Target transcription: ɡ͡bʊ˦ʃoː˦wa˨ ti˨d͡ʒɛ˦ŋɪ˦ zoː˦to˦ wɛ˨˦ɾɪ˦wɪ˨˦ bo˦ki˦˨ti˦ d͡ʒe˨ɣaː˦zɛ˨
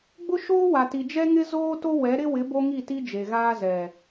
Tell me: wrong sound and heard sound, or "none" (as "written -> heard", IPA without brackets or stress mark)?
k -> ŋ